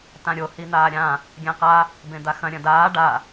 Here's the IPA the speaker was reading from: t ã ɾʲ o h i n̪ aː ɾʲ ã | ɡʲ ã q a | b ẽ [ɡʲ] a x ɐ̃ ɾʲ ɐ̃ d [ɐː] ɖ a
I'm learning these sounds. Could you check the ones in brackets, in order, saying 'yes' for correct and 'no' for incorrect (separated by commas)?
no, no